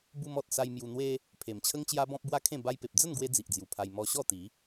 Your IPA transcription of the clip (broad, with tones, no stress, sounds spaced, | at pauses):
b u˧ m ɔ˨ t̚ s a˧ j m j u˧ n̪ w e˦ | pʰ e˨˩ m t͡ɕʰ ə˦ ŋ t͡ɕ j a˦ b ɔ̃˦ p̚ b w a˦ kʰ ẽ˥˧ b a˦ j p e˨ p̚ d͡z ə˥˧ n ɡ w e˦ d͡z i˨ ʔ d͡z j u˨˩ pʰ a˧ j m ɔ˧ ɕ ɔ˥˧ t̪ i˨˦